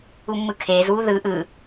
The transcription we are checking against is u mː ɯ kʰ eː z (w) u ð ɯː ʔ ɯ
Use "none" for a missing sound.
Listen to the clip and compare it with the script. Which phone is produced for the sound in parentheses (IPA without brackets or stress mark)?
w